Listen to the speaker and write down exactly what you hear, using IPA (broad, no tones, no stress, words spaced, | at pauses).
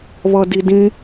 βʌdidĩ